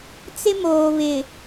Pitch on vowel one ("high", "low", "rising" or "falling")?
high